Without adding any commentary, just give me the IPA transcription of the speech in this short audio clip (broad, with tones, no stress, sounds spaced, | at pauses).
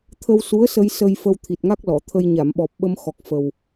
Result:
t̪ʰ ə˧ w s u˧˥ ə̯ s ə˧ j s ə˧ j f ə˧ w t̪ʰ i˨˩ t̚ ŋ a˦˥ k̚ l ɔ˨˩˨ t̪ʰ ə˧ j ɲ a˨˩˨ m ɓ ɔ˨˩ p̚ ɓ ə˧ m x ɔ˨˩ k̚ f ə˨˩ w